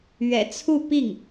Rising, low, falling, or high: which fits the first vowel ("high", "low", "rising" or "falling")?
low